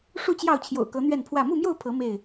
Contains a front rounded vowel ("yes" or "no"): no